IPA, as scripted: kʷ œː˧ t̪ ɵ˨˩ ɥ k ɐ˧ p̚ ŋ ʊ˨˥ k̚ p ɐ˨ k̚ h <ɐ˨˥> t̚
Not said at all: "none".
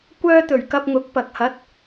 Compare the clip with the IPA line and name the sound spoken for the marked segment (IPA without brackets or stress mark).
ɐ˨˥